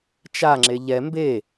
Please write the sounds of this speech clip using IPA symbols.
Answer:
t͡ʃ a ŋ͡ǁ e ʎ ɛ m b e

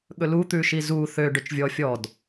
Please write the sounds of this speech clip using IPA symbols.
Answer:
ɠ ɵ l u t̪ ʉ ʃ i z u θ ø ɖ ø t͡ʃ vʲ ɔ fʲ ɔ d

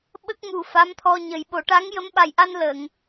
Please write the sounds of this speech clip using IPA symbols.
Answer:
ɓ ə˦˥ k̚ m u˨˩ f a˧˥ m t̪ʰ ɔ˧ ɲ ə˨˩˦ j ɓ o˨˩˦ ʈ a˧˥ ŋ j ə˧˥ m ɓ a˨˩ j ʔ a˧ n l ə˨˩˨ ŋ

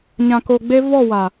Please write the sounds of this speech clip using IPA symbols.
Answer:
ɲ ã˨ k o˨ ɡ͡b e˦ v ɔ˦˨ w a˨

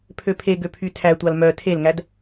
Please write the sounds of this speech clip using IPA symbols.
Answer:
pʰ ø pʰ e ɡ ø pʰ y tʰ æ tʷ ɑ l m œ tʰ e l ŋ æ d

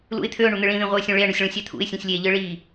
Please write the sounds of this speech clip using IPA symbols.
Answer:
l ṵ ɪ̯ t̪ʰ ø ʊ̯ ɳ u n̪ ɯ ɭ ĩ ð ĩ ʁʷ e ʊ̯ sʲ ũ ɭ e ə̯ ɳ u sʲ ɭ ũ sʲ æ t̪ʰ ṵ ɪ̯ sʲ ũ sʲ lʲ e ʎ ɯ ɭ i

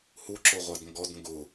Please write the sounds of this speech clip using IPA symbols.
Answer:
h u ǁ o ʁʷ a d ŋ ɡ ɔ d ŋ ɡ ʊ

